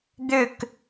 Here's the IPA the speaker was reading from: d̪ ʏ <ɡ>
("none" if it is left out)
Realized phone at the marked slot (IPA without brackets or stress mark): k